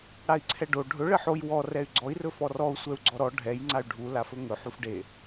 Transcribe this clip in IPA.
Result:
ɽ a i̯ ǀʰ ɛ ɖ o ɖʱ ɵ ɭ ɘ ħ o j w ɔ r ɛ y̯ ɡ͡ǀ ɔ i̯ r ɵ f ɔ r ɔ u̯ sʷ ɛ u̯ ɡ͡ǀ ɔ ɾ ɔ ɖʱ ɛ j ŋ͡ǀ a y̯ ɖʱ u l a f ɵ ŋ ɵ ħ u f ɖ e

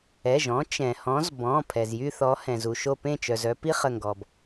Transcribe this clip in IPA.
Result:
ɛ˩˧˩ ʒ ɔ̃˨˦ t͡ʃ ɛ̃˩ h ɔ̃˨˦ z b ɔ̃˩˧˩ pʰ ɛ˩ z j y˥˧ θ ɔ˨˦ h ɛ̃˩ z u˩ ʃ o˧˩ p ẽ˥˩ t͡ʃ œ˩ z œ˥˧ p i˥˧ χ ə˧˩ ŋ ɡ ɔ˩ b

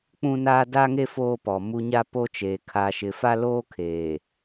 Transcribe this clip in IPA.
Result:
k͡p ũ˦ n aː˦ d a˦ ŋ e˦ f oː˦ p ɔ˨ m u˦ ɲ a˦ p o˦ t͡ʃ eː˨ kʰ aː˨ ʃ ɪ˨ f a˦ l oː˦ kʰ eː˨

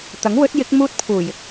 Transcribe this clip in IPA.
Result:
t̪ ɐ˨˥ ŋ w ɵ˨˥ t̚ j ɪ˨˥ k̚ m uː˥ t̚ pʰ uː˨˩ j ɪ˨ k̚

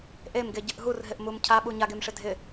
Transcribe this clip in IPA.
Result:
ʔ e m ɡ e ɟ ɪ ʔ ɦ u r ɦ ɪ ʔ m u m cʰ a ɓ u ɲ a ɡ e m ʂ ɪ dʱ ɪ

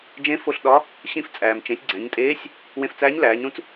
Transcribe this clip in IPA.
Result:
d͡ʒ ẽ˧˥ f o˧ ɬ ɗ ɒ˧˥ | ɕ ĩ˧ f t͡sʼ æː˩ m t͡ʃ ẽ˩˧ sʲ ɡ͡ǀ æ̃˩˧ ɲ tʼ eː˧˥ sʲ | w ẽ˧ f t͡s æː˧˥ ɲ l æː˩˧ ɲ ɾ ũ˥ t͡s

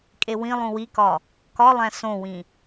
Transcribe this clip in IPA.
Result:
kʼ e w ĩ lˠ ũ w i k ɒ | k ɒ lˠ æ̃ s õ w ĩ

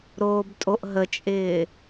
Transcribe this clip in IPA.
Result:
ɾ oː b tʼ o ʔ ɦ ə t͡ʃʼ ɪː

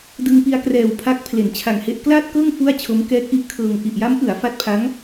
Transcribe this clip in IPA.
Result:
d ɯ˧ ŋ p i˧ a̯ k r ɛː˨˩ w pʰ a˦˥ k̚ pʰ l e˩˦ n t͡ɕʰ a˨˩ ŋ h e˦˥ ʔ k l aː˥˩ t̚ k ɤː˥˩ ŋ f u˥˩ a̯ t͡ɕʰ o˦˥ m k ɛː˦˥ k̚ ʔ i˦˥ ʔ kʰ ɤː˧ ŋ ʔ i˨˩ ʔ j a˦˥ m ʔ ɯ˩˦ a̯ f a˦˥ t̚ pʰ a˦˥ ŋ

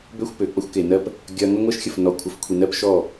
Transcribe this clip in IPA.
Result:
b ø˦ xʷ p ø˨ k͡p ə˦ xʷ k e˨ n ɜ˦ p | ɡʲ ɐ˦ ŋ ɐ˦ ŋʷ ɜ˦ ʃ xʲ ə˨ f n ɔ˨ kʷʰ ə˨ f kʷʰ i˨ n ɜ˦ p ʃ ɔ˦˨

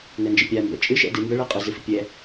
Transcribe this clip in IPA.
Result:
n ɛ n d͡ʒ ə pʲ a m b ɛ̰ t͡ʃʼ ɨ ʃ ɛ̰ d ɨ m b ə ɭ ɛ qʼ ɨ z ɨ f ɨ pʲ ɛ

